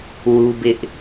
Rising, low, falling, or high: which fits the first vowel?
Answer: high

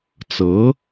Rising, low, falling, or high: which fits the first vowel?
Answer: rising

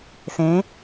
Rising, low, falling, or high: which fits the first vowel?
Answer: rising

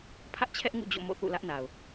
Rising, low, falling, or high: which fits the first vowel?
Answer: high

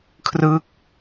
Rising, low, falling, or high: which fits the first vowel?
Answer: falling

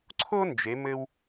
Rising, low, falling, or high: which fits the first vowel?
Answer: high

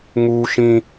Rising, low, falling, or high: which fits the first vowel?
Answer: high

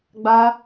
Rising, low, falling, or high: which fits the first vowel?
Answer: high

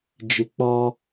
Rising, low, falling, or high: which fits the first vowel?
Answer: low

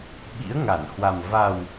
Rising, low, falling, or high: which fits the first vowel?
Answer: rising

